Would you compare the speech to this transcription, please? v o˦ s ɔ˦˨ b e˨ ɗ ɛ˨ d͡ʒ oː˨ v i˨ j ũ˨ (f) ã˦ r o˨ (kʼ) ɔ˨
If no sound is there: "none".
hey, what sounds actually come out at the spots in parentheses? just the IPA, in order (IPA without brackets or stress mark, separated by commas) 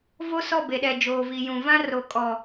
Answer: v, kʼ